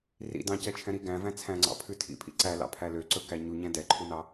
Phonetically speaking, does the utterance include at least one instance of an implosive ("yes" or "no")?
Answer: no